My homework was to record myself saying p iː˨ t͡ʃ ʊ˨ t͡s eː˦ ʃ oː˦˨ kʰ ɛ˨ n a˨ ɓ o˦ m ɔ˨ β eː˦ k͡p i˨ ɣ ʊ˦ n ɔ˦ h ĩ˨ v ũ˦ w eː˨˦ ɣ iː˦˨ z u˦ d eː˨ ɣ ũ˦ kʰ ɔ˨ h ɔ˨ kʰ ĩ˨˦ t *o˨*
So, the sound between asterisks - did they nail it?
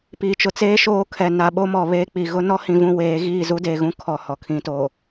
yes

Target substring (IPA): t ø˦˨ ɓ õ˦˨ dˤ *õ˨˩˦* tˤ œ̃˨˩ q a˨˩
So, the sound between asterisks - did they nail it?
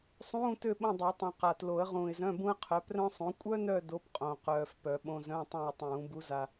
no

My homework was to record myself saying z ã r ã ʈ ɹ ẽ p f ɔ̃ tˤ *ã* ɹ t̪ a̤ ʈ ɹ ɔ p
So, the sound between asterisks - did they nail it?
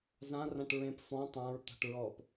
yes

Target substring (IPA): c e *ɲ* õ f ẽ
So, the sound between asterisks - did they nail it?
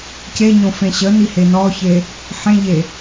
yes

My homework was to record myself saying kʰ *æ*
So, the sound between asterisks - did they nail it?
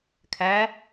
yes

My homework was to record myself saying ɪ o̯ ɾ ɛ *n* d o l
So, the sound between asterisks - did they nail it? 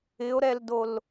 no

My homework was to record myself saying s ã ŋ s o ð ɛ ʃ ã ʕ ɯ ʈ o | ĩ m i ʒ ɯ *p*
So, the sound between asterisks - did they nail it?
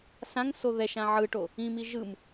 no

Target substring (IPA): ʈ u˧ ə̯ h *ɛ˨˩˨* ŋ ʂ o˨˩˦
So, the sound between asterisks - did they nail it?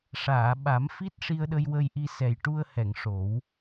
yes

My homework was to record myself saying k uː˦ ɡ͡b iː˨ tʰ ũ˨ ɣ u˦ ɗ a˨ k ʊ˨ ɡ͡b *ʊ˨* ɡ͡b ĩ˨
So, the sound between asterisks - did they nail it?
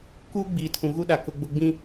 yes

